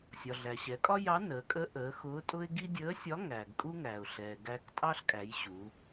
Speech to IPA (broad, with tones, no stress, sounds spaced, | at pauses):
sʲ ɒ˩ ɮ æ˩ ɕ ɛ˩˧ kʼ ɒ˥ j ɑ˧˥ n əː˩˧ kʼ ə˧˥ ʔ əː˩˧ x ʊː˧˥ tʼ ʊ˥ ɪ̯ ɡ i˥ dʲ əː˧˥ sʲ ɒ˧˥ ŋ æː˩ ɡ kʼ u˥ ŋ æː˩ ʊ̯ ɬ ɛː˩ ɡ æː˧ k tʼ ɑ˥ ɬ kʼ æ˩˧ j ɕ u˩˧